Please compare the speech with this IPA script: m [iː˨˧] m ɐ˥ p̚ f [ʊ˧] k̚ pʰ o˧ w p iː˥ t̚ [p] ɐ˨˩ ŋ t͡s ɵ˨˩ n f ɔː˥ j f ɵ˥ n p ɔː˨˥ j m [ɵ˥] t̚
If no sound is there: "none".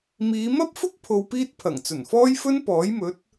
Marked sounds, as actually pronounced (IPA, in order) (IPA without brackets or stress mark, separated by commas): iː˨˧, ʊ˥, pʰ, ɵ˨˥